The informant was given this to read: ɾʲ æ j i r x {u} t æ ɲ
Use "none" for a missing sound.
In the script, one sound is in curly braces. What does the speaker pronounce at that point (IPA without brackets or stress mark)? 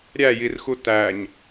u